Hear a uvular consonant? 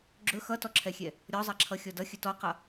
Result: yes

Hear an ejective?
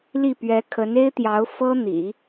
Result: no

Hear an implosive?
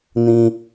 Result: no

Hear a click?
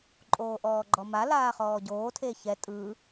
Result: yes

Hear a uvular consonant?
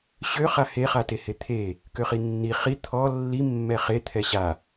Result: yes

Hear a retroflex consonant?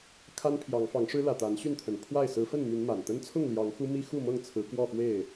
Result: yes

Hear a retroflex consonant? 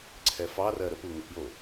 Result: no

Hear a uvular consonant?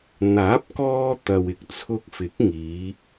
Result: no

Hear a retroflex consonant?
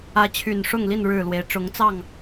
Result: yes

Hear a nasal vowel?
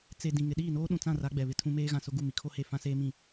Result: yes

